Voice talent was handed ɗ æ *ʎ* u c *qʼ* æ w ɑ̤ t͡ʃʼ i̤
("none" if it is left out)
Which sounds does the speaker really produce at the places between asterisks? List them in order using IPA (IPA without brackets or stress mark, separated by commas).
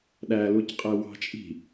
l, qʼ